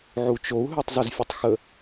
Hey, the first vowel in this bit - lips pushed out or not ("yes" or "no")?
yes